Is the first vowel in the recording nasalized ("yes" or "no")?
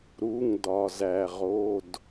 no